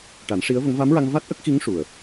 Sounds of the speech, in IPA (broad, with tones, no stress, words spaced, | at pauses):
ʈa˨˩˦nʂi˧˥ə̯və˧˥ŋ va˧˥mɹa˧ŋ va˦˥t̚ ʔə˦˥k̚xi˧˥ŋ ʂu˨˩ə̯